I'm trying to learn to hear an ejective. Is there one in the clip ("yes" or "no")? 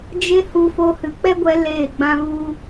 no